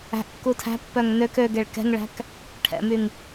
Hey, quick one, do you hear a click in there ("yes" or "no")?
no